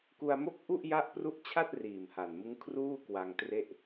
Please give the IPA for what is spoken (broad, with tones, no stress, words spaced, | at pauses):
ku˧a̯mo˥˩k̚ ʔu˥˩ʔja˦˥ʔpru˦˥ʔt͡ɕʰa˥˩t̚ riː˨˩mha˨˩nmɯ˦˥ŋkʰruː˥˩ kwa˧ŋtre˥˩ʔ